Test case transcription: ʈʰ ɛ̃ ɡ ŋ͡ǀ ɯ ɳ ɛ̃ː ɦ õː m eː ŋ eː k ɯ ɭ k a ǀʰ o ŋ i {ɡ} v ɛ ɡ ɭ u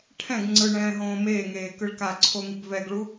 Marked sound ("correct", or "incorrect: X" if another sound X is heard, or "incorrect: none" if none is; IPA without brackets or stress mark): correct